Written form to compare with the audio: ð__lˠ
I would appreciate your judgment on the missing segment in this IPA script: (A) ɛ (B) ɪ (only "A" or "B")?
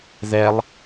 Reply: A